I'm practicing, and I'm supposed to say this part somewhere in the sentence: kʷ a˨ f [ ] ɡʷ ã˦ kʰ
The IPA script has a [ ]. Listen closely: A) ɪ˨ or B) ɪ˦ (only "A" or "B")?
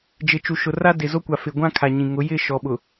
A